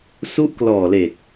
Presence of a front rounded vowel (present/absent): absent